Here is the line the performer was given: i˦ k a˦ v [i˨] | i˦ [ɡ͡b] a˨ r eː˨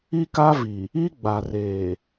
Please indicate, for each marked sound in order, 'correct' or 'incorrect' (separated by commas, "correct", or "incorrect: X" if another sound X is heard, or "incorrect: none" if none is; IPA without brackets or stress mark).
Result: correct, correct